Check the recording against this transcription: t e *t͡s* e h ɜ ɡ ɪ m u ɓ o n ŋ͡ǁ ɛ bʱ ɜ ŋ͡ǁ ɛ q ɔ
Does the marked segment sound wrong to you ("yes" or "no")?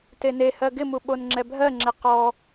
yes